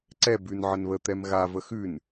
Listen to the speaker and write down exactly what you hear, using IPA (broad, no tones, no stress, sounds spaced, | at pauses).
ǀ ɛ b ʉ n ʕ ə n β ə t̪ ɛ m ɣ a v ə x ʉ n